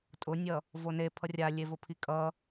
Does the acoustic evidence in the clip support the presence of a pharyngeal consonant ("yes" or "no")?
no